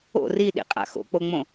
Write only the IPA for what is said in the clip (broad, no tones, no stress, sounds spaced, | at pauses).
o̰ r i ɗ ḭ qʼ a̰ x o̰ k͡p o ŋ͡m õ